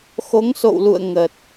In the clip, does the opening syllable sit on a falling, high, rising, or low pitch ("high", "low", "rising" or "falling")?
rising